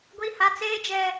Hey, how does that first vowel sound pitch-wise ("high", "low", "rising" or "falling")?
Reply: high